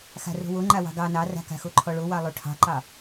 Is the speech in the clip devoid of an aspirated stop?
no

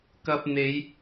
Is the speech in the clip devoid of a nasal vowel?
yes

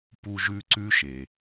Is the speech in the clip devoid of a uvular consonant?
yes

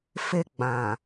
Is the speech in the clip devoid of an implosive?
yes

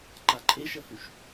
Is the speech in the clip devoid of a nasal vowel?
yes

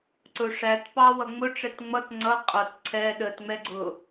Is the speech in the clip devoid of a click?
no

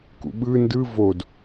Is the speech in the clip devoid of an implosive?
no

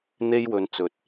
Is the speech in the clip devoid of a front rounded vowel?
yes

